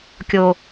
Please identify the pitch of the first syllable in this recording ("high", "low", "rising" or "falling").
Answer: high